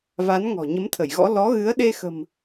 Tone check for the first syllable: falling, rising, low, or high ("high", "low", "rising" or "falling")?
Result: rising